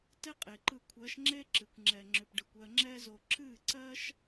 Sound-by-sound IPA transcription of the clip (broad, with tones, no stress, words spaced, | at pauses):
tɛ˦qʼe˨ǃɯ˧ kʷʰɜ˨˦ʃŋ͡ǁe˦ǁɨ˨kʷ ŋ͡ǁɛ˧ŋ͡ǁʏ˧pɖɯ˧kʷɜ˦ ŋ͡ǁɛ˦zo˧ ǁɨ˦˨ǀɜ˦ʃ